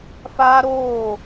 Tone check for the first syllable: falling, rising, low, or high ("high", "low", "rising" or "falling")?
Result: high